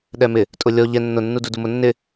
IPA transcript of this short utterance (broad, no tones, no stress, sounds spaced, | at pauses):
ɗ ɛ m ɪ | tʼ ʊ lʲ ɔ ʎ ɛ nː ʊ nː u d u d u m ʊ nː ɪ